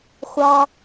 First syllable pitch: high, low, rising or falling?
high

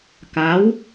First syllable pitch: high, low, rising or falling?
rising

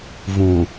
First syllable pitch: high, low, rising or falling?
low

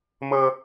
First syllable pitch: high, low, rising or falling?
high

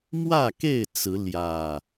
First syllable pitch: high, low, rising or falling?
falling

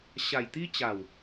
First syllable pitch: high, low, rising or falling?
low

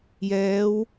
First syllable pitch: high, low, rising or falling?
rising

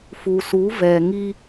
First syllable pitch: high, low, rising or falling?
low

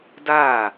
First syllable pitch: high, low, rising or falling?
falling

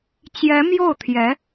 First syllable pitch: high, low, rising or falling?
rising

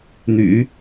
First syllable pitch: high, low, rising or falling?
low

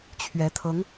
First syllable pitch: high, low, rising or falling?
rising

